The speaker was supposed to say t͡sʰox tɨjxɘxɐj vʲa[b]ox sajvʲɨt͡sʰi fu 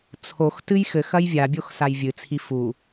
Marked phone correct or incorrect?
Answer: incorrect